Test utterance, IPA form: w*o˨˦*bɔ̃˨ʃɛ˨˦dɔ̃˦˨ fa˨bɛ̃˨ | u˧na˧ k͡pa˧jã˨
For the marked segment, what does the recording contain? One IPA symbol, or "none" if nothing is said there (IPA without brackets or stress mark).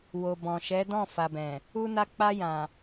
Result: o˨